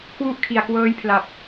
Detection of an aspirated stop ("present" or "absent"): present